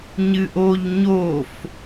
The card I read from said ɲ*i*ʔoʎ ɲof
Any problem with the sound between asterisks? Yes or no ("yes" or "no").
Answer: yes